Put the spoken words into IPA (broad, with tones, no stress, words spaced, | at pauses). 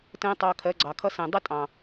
tə̃ː˦tˤɑ˧kʰɜ˨˦ ɡ͡ǀɑ˨kʰʌ˦sə̃ː˨ dˤə˦ tʼɑ̃˨